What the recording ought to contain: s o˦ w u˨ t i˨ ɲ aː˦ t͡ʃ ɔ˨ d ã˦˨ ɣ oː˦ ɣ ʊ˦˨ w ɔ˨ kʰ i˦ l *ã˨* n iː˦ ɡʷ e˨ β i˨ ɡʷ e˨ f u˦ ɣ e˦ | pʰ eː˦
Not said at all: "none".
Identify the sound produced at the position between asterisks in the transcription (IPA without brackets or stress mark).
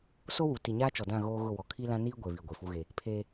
ã˦